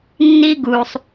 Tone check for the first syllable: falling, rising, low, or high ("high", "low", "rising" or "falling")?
high